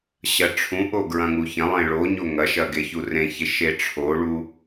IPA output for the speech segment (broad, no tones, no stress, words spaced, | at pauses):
ɕɐʈ͡ʂʰũʔo ɡɹɐ̃ŋuçɐ̃lˠẽ ɭoɲo ŋɐʃɐ ɡeçurẽçe ʃeʈ͡ʂʰoɭu